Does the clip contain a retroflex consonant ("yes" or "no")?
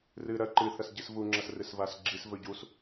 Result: no